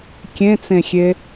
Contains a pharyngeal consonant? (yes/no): no